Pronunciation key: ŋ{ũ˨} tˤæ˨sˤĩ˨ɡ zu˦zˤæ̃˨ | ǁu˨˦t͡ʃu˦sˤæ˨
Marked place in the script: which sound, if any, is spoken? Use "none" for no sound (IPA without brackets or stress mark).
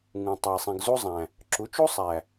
ũ˨